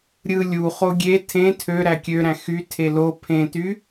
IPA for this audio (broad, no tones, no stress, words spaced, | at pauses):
ɾʲɯ lʲu χoɡʲe tʰẽ tʰø ɾækʲøɾæ̃ xy tʰelo pʰẽty